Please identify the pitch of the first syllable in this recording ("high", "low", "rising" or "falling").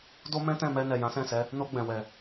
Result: high